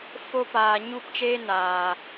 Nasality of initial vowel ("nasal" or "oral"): oral